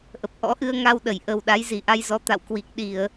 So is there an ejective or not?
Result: no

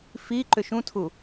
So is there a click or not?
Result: yes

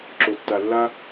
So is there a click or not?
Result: yes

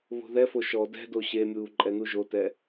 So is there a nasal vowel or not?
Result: no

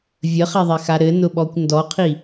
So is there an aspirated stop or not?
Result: yes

